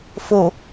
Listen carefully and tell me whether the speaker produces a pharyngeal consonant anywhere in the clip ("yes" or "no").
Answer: no